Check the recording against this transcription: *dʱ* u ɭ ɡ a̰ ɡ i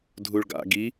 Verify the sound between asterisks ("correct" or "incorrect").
correct